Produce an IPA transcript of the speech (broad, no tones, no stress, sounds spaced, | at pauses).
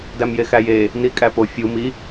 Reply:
d æ m j e x æ j e | n i kʼ æ p o fʲ u m i